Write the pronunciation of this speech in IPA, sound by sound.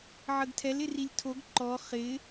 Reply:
ʕ ə ɡ tʰ ɛ l ɪ r i lʲ tʰ o ɡ ǃ ɔ χ ɪ

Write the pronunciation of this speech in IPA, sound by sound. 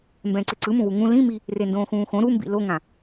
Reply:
m b ɛ̃ː ǀ e ǀ ɯ m ũ w u ŋ ũ l ĩ m i | r e n d õː x ũː x õ ɾ u m b ḭ l o ŋ ã

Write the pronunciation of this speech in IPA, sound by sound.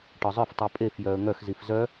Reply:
ʈ ɒ zˤ œ f tˤ u pʼ e f j œ ə̯ ŋ œ x z i f z œ

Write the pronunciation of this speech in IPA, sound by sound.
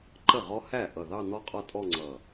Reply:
ǃ ə˥˩ ʁ ɔ˦˥ h æ˥˩ ʔ ʌ˧˩ ð ɑ˥˧ n̪ ɔ˥˧ qʼ ɒ˥˧ tʼ ɔ˥˧ ŋ͡ǀ ʌ˧˩

